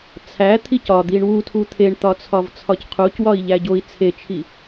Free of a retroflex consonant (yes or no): no